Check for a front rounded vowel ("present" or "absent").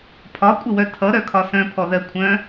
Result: present